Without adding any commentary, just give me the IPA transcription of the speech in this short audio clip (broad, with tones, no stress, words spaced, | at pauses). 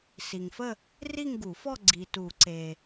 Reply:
si˨ŋfə˥˧ | ri˥˧ŋɡu˨˩˦fɔ˥˧ ɡ͡ǀi˨tu˨˩˦ǀe˨